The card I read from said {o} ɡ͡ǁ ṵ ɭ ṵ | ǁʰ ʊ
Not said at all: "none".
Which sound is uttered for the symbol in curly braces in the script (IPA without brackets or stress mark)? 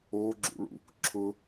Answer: o